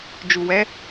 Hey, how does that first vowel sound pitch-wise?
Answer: low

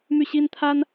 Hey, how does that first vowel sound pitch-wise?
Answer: falling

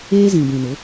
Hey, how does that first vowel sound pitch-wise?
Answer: high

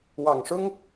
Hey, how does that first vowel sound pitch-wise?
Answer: low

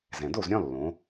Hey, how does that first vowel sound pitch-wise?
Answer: low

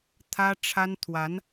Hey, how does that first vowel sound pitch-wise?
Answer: high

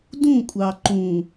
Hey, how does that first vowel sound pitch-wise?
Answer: falling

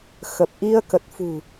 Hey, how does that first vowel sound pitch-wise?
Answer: low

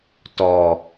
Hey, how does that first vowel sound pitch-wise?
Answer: low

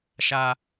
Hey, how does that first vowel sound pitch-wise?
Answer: high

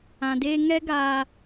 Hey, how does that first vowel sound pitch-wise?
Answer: low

